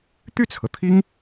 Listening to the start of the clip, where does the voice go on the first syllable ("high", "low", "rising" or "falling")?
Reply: falling